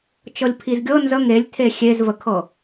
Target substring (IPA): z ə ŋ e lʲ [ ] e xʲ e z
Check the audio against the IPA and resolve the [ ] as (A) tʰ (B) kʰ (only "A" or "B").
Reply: A